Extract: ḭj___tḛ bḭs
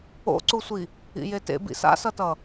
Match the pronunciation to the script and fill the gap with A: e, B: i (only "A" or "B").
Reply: A